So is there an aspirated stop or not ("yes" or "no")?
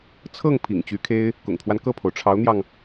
yes